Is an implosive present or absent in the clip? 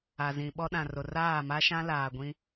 present